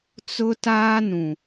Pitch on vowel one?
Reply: high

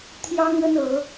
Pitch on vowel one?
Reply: high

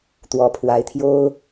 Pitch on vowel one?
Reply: rising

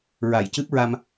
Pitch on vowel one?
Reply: low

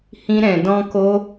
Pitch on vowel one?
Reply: high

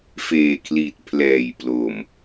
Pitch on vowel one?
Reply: low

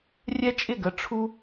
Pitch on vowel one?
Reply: high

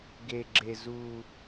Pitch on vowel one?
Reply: low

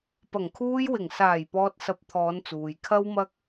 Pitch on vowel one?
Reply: low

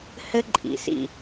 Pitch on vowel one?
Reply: high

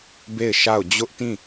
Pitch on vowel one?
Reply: falling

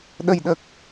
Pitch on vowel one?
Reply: low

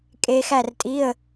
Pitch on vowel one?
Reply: low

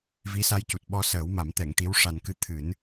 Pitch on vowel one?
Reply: rising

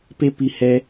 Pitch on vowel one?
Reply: high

